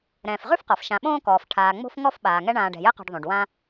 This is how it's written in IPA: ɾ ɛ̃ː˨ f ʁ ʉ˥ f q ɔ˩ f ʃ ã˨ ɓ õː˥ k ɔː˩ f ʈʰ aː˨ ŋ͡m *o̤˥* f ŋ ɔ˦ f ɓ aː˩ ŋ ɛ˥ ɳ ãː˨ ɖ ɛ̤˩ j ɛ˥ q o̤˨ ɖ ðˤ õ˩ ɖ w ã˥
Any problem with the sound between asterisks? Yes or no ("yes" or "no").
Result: no